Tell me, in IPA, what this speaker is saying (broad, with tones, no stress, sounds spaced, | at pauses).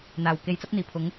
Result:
n̪ aː˨˩ w k e˨˧ j t͡s ɐ˥ p̚ n̪ iː˨˩ pʰ ʊ˨˧ ŋ